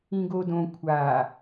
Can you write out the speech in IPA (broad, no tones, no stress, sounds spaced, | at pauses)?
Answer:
ĩ ɡ o d õ kʷʰ aː